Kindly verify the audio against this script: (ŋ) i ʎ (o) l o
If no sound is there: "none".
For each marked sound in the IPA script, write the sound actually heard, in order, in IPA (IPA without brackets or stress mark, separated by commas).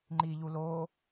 ŋ͡ǃ, u